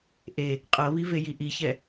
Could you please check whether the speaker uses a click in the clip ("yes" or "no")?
no